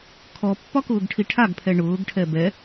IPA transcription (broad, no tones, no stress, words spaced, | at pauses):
kʰɔpːɒkʊːɡʈʰi ʈʰaɡpʰɛ ɳʊːɡʈʰɛ bɛ